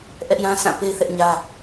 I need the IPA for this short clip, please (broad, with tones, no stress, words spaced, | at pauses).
ʔɛ˦ʔjã˦ sã˦˨pe˦ɪ̯ θɛ˦ʔɲä˦